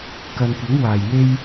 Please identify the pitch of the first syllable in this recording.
low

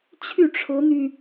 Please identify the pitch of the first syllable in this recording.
falling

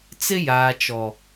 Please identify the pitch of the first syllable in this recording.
high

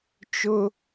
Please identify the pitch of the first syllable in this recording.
high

